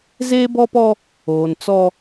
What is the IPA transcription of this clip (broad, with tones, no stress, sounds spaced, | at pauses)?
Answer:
z eː˦ b ɔ˦ p ɔ˦ | oː˨ n t͡s ɔ˦